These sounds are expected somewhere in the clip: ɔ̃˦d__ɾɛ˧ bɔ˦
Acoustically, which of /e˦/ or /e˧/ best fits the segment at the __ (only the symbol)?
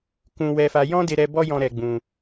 e˧